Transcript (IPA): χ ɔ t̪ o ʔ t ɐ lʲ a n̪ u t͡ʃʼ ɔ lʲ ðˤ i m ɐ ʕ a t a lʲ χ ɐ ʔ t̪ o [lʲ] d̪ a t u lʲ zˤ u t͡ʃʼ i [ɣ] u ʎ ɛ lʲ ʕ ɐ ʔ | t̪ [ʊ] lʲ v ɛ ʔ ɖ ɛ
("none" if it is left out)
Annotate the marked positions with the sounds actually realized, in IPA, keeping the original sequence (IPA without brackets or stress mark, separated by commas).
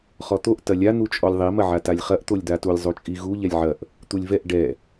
lʲ, ɣ, u